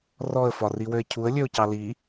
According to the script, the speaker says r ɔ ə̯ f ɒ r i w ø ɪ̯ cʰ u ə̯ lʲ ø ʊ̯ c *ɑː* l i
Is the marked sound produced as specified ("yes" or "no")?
no